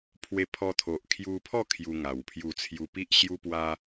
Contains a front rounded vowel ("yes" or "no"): no